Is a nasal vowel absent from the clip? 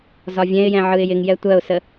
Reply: no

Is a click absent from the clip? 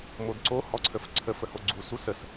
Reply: no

